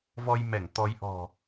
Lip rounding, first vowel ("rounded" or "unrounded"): rounded